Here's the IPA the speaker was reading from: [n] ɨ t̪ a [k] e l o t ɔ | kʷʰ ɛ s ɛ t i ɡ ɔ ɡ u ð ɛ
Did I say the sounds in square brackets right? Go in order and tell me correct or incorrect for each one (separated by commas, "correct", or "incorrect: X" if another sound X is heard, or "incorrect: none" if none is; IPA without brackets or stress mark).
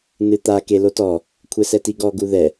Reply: correct, correct